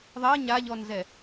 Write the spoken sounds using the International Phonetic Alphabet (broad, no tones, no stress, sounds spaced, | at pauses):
ðˤ ɜ ɲ a ʎ ɔ n z ɛ